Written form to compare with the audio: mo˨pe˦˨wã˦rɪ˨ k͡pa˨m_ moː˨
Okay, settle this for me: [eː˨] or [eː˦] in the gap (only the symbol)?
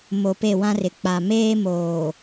eː˦